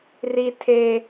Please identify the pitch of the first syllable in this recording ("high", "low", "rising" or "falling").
high